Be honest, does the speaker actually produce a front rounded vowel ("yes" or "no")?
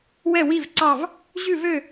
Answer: yes